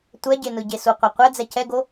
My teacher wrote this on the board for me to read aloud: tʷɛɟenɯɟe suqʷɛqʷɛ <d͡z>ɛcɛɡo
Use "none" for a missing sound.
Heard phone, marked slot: d͡z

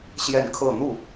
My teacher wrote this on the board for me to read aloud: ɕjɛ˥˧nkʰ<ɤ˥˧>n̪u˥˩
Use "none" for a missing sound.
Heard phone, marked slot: ɤ˥˧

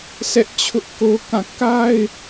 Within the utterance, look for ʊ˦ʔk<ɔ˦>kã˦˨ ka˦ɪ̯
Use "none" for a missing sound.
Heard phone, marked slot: o˦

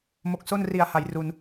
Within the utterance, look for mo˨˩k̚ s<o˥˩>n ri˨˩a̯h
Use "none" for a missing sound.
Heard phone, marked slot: o˥˩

